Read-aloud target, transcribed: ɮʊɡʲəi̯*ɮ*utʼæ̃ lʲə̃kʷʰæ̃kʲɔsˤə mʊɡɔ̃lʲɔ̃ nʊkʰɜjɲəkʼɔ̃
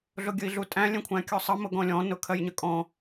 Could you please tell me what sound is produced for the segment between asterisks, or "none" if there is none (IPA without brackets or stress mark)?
ɮ